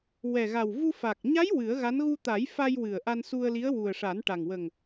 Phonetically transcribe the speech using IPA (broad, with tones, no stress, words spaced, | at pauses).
wɛ˨˩ɣa˨˩w vu˧fa˨˩k̚ ɲa˧˥j wɨ˨˩˦ə̯ɣa˧˥n ɣu˧t̪a˨˩˦jfa˧j wɨ˨˩ə̯ ʔa˧nsu˧ə̯li˧˥ə̯ wu˨˩ə̯ʂa˨˩˦nʈa˨˩ŋ wə˨˩ŋ